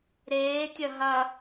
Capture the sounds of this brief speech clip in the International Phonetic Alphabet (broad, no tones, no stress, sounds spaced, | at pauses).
ɾ eː tʲ ɐ ɦ ɐ